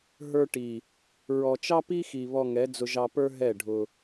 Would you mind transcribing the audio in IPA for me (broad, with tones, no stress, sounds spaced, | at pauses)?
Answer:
ɦ ə˞˧ ʈ i˨ | ɹ ɔ˨ t͡ʃ ɑ˦ p i˦ x i˨ β ɔ˧ ŋ ɛ˨˦ d͡z ʊ˧ ʒ ɑ˧ p ə˞˦ ɦ ɛ˦˨ ɖʱ ʊ˧